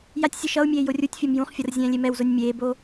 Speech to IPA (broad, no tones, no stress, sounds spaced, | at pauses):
j a tʲ sʲ ɯ ʃ ʌ u̯ mʲ eː j o rʲ u tʲ fʲ o m j ũ χ fʲ ʌ r zʲ ɛ̃ː lʲ e m ɛ w z o nʲ mʲ eː b o